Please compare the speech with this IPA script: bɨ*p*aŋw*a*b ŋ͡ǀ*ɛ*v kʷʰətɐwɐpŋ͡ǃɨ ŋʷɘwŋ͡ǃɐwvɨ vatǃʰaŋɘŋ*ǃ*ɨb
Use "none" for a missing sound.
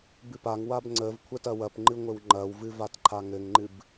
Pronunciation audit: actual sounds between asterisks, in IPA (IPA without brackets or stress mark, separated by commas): p, a, ə, ŋ͡ǃ